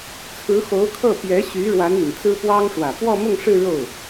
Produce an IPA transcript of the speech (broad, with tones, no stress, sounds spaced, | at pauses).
t͡sʰ ɹ̩˧˥ x o˧˥ ʊ̯ kʰ ɤ˥˩ p j ɛ˧˥ ɕ y˧˥ ɻ w a˧˥ n i˨˩ n t͡s ɹ̩˥ p w ɑ˥ ŋ ʂ w ä˨˩ p w ɔ˥˧ m ʊ˥˧ ŋ ʂ ɻ̩˥˧ ɻ o˥˩ ʊ̯